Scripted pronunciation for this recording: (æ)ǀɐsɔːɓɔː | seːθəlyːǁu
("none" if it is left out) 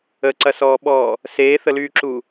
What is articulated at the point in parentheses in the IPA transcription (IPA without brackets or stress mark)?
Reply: ə